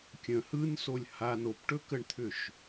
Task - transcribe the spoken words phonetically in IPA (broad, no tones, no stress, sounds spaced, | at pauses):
kʲ ə̃ h ɯ n s o lʲ h a n o p ʈ ɵ k ə ɳ t̪ʰ ʏ ʃ